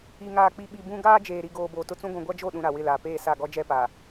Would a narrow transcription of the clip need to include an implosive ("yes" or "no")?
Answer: yes